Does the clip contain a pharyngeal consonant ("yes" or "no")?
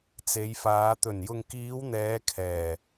no